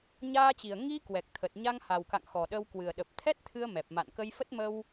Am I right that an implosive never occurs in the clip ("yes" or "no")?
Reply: no